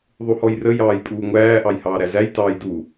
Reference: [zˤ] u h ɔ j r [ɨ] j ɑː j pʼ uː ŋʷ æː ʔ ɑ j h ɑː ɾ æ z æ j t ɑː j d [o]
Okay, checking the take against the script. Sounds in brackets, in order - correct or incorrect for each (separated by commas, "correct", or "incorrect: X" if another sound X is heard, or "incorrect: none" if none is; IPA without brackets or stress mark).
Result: incorrect: ðˤ, incorrect: ə, incorrect: u